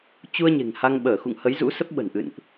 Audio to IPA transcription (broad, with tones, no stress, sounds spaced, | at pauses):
t͡ɕ u˧ ə̯ ɲ e̤˨˩ ŋ h a˧ ŋ ɓ əː˧˩ x ṵ˧˨ ŋ h ə˨˦ j z ṵ˧˥ s ə˦˥ p̚ ɓ ə̤˨˩ n ʔ ɨ̰˧˨ n ʔ